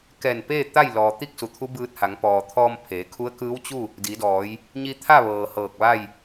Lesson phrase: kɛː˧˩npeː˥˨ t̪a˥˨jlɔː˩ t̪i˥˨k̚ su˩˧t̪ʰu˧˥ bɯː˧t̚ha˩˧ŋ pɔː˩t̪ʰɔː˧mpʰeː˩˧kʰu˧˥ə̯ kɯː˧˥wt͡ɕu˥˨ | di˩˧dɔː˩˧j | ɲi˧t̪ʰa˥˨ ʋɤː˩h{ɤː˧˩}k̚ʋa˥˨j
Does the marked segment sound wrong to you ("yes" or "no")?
no